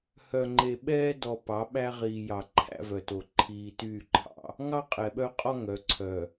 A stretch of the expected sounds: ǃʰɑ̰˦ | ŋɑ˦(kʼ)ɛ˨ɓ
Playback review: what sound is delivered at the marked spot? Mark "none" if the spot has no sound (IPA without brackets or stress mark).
qʼ